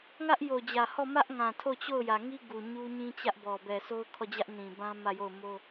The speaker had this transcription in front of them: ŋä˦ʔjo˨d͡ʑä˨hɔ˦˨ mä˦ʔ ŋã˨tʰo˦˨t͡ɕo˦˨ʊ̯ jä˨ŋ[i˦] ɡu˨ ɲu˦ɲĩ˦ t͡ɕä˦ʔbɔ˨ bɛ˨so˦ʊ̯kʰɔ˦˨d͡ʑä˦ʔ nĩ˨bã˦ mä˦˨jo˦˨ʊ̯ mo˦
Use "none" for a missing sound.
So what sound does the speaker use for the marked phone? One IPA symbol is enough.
i˦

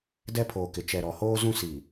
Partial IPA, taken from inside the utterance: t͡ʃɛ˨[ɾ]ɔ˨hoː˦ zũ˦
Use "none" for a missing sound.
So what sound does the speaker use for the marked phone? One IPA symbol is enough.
ɾ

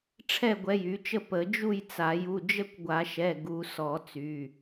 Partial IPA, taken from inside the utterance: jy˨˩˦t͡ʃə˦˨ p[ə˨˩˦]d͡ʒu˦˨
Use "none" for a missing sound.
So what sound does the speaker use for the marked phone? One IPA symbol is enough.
ə˨˩˦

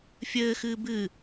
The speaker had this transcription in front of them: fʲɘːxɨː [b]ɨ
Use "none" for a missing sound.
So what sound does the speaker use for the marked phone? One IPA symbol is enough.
b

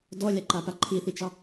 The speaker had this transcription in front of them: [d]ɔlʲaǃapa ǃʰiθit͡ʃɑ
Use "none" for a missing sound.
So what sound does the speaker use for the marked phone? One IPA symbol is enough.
d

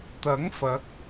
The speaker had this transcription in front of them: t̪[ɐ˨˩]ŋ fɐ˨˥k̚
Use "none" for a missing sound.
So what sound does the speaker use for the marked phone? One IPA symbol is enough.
ɐ˨˥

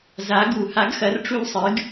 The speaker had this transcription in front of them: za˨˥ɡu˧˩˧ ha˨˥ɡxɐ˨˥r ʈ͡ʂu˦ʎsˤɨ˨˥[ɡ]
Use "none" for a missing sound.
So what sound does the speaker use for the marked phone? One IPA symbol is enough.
ɡ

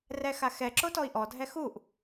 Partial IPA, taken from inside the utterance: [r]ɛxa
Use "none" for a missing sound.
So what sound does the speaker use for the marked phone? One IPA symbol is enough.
r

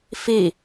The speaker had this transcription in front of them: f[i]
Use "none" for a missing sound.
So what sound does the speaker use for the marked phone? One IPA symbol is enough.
i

